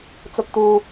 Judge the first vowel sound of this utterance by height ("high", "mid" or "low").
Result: high